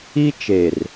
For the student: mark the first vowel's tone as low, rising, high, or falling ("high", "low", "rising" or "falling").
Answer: high